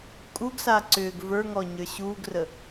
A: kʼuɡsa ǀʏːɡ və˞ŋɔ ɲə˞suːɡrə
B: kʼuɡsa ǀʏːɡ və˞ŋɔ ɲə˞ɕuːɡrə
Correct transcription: B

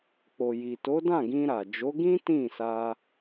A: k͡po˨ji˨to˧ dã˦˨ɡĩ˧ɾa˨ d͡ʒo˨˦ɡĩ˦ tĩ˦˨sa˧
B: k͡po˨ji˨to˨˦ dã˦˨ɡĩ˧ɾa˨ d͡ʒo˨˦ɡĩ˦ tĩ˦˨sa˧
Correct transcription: B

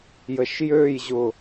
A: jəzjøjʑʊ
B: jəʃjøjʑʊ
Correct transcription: B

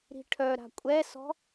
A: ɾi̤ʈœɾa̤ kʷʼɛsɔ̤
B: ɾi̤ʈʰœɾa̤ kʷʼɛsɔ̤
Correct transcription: B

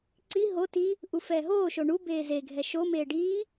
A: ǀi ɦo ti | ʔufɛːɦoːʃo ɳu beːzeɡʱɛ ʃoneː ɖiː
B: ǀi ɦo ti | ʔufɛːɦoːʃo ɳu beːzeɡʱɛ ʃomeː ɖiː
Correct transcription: B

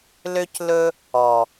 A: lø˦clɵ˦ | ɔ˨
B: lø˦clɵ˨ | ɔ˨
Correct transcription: A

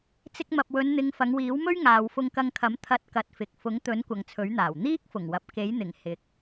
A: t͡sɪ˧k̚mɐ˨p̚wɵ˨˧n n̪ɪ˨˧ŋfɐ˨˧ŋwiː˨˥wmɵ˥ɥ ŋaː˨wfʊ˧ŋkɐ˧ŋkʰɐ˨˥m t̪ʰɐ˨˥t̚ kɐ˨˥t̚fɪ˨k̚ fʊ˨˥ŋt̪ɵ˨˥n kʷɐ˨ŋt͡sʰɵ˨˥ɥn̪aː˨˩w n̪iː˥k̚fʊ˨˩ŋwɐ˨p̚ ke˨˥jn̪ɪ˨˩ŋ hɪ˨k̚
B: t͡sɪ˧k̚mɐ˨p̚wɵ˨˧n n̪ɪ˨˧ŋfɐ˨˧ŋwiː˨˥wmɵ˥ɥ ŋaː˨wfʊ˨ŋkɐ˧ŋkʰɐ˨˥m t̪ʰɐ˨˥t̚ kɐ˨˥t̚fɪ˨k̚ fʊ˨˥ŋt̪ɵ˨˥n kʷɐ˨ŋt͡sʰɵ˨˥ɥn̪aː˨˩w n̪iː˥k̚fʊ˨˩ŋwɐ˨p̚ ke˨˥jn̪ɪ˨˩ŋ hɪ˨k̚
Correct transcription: A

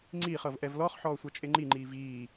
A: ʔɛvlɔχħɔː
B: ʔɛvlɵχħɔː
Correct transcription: A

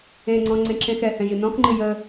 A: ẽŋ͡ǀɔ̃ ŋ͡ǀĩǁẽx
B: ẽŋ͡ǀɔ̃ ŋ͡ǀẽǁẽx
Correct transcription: B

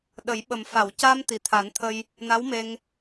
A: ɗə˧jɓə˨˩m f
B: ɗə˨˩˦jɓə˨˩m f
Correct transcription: B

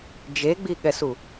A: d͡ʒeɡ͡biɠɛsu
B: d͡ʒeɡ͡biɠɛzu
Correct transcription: A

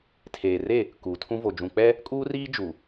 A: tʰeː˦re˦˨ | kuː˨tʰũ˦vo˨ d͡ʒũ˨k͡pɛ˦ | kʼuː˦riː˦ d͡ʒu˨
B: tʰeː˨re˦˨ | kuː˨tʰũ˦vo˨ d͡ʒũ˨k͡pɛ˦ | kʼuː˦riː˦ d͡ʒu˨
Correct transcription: B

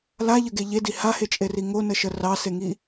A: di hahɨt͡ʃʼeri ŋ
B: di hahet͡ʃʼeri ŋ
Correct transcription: B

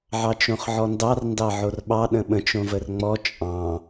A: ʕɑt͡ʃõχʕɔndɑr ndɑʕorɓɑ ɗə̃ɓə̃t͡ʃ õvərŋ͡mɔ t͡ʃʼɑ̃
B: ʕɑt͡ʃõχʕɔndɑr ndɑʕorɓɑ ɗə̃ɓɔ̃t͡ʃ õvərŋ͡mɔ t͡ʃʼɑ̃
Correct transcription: A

